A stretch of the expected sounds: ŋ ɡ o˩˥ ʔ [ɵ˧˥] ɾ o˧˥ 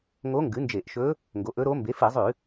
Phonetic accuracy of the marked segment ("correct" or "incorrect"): correct